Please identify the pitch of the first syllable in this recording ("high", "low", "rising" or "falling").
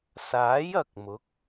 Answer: rising